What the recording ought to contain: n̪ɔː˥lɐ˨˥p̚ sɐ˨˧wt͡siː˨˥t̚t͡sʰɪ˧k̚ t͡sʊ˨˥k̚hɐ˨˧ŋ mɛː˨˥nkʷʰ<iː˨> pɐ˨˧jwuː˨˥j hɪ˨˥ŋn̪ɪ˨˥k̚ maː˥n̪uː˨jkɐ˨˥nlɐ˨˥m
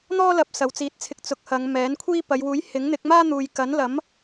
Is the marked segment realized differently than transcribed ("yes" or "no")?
yes